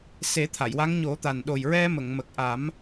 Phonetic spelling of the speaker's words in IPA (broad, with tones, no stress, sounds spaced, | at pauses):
s e˨˩˦ t̪ʰ a˨˩˨ j w a˧˥ ŋ ɲ o˨˩˦ t̪ a˨˩ n ɗ o˨˩ j ɹ ɛ˧ m ə˨˩˨ ŋ m ə˨˩ k̚ ʔ a˨˩˦ m